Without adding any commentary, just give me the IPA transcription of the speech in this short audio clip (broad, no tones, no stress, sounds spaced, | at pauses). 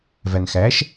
v æ n x æ ʃ